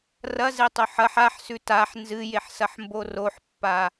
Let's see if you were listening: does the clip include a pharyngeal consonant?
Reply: yes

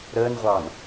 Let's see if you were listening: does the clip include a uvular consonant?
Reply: yes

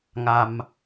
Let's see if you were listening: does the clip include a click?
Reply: no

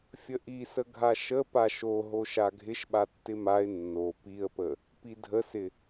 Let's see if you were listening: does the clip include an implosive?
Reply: yes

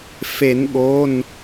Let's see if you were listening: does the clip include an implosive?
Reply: yes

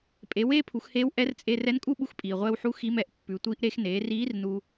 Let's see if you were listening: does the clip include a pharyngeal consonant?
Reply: yes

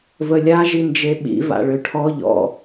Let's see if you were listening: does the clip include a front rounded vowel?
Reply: yes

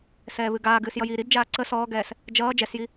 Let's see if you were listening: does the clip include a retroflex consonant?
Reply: no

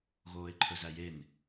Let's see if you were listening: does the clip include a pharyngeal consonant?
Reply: no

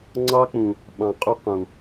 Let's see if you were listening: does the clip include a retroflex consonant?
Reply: no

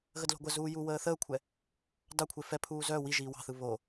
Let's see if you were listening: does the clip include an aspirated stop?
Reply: yes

